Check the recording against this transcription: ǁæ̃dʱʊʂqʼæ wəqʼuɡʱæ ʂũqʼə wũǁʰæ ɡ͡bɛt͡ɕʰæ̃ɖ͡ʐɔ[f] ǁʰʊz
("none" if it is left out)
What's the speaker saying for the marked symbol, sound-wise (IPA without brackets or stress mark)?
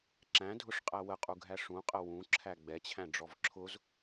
v